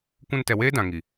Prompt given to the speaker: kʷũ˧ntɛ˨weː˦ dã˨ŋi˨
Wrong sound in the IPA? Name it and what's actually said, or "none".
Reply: none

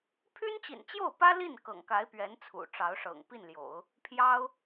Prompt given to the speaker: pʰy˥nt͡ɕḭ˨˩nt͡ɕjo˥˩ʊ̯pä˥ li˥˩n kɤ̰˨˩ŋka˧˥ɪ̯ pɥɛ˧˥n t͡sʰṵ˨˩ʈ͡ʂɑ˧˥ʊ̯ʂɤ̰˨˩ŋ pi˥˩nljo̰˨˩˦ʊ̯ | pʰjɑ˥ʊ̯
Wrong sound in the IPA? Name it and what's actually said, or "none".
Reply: none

